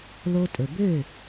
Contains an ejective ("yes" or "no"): yes